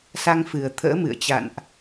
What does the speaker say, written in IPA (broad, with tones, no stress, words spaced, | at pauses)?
sa˧ŋfɨ˨˩ə̯t̪ʰə̰ː˧˥ mɨ̰˧˨ə̯t͡ɕa̰˧˨nʔ